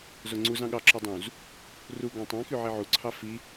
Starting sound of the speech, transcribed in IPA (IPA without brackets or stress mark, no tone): z